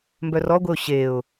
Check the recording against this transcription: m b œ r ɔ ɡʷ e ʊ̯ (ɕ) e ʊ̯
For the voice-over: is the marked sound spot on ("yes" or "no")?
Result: yes